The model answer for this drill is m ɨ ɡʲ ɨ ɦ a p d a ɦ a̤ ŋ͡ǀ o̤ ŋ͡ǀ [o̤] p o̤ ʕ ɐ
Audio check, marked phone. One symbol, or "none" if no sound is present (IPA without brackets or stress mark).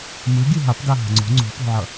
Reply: o̤